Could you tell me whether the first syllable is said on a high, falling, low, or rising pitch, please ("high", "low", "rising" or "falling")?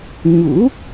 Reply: rising